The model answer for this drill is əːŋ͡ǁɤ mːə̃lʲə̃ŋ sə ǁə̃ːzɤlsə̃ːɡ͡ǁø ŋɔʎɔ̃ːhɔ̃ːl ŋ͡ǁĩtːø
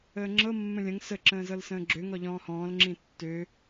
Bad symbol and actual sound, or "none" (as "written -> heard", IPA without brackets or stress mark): none